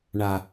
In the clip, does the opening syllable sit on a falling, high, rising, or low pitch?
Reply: low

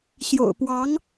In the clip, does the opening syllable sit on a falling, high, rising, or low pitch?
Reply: low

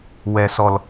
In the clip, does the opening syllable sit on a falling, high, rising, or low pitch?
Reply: low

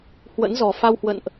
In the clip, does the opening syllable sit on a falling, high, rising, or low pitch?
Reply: rising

